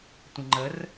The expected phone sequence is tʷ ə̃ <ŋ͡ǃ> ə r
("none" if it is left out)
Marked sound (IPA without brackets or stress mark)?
ŋ͡ǃ